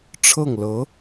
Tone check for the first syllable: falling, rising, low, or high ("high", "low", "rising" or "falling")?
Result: falling